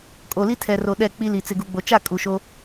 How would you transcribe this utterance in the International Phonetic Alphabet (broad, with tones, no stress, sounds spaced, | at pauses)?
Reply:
kʼ o˨ l i˦ tʰ ɛ˨ r o˨ ɗ ɛ˦˨ k͡p i˦ l i˨ t͡s ɪ˨ ɡ u˨ ɡ͡b o˨ t͡ʃ a˦˨ kʼ u˨ ʃ o˦